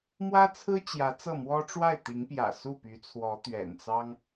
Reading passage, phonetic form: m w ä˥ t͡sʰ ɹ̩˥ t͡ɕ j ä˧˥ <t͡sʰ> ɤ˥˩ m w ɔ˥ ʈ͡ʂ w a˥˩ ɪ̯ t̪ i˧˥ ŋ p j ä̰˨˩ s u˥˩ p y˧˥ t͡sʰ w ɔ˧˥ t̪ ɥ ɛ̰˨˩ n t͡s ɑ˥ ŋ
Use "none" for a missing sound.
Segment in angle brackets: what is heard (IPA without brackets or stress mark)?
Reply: t͡s